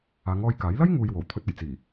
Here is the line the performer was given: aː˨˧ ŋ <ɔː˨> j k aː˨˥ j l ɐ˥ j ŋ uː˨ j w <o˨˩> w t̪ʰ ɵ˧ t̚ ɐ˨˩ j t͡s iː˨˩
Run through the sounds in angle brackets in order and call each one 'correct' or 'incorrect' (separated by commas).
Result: incorrect, correct